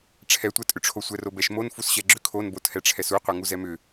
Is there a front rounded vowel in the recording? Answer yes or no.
yes